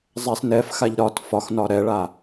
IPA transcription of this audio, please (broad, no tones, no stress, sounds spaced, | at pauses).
zˤ ɛ s n ɛ f x a ʎ ɾ ɒ t f ɒ x n ɒ ɾ ɛ ɭ a